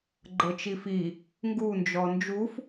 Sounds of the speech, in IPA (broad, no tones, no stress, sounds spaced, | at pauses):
ɡ͡ǃ ɤ t͡ʃ i f i | ŋ ɡ u n d͡ʒ ɔ n d͡ʒ u f